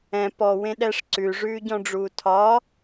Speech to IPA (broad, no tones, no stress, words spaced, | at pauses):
ɛ̃ pɔ wẽɗɛʂ ǀʉ ʐʉːɟɔ̃ɖ͡ʐuːtʰɒ